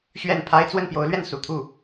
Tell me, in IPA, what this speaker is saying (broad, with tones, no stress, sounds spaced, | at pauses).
ɕ ɥ ɛ˥˩ n pʰ a˥ ɪ̯ t͡s w ə˥˩ n p j o˧˥ ʊ̯ l ɥ ɛ˥˩ n s ṵ˨˩ t̪ʰ u˥˩